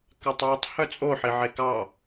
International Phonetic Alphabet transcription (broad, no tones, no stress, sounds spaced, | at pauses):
k ɑ tˤ w ɯ tˤ h œ t͡sʼ o ħ i ʕ e k ɑ